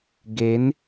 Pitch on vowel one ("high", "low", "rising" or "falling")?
rising